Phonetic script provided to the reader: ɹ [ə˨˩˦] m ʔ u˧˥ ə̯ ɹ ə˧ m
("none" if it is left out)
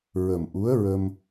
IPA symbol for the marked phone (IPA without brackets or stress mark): ə˨˩